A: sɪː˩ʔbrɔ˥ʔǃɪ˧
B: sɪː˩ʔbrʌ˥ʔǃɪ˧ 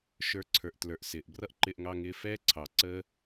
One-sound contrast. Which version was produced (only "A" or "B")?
B